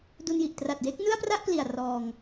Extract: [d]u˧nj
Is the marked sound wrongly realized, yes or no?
no